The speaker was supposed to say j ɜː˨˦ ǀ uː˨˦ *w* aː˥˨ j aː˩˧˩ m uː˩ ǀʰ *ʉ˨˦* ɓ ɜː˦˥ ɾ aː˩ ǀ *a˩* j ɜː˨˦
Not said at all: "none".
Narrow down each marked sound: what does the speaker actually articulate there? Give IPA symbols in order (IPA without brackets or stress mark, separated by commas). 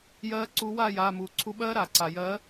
w, u˨˦, a˩